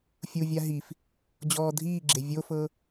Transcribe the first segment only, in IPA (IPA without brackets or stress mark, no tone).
fʲ